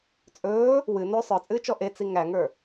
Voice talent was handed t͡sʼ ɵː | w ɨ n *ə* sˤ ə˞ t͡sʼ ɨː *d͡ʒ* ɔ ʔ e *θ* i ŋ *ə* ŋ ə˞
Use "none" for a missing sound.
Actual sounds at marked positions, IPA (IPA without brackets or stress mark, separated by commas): ɵ, t͡ʃ, t͡s, æ